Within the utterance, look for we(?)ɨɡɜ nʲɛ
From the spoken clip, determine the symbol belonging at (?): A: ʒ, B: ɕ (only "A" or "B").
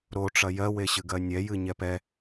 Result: B